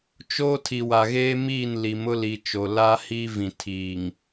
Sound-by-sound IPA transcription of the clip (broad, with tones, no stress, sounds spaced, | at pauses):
t͡ʃ oː˦ tʰ i˨ w a˨ ɣ eː˦ m iː˦˨ n l i˨ m ʊ˦ l i˨ t͡ʃ o˨ l a˦ h i˦ v ĩ˨ tʰ iː˨ ŋ